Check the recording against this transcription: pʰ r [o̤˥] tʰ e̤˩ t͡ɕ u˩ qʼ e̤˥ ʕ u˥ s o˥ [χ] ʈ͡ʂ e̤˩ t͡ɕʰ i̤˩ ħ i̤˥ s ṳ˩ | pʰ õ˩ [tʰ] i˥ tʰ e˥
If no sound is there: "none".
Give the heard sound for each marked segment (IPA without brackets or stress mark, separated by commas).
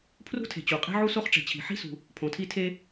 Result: ṳ˥, χ, tʰ